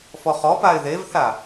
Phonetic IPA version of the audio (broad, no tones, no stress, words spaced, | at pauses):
fɔχɔpaɪ̯ ðevθa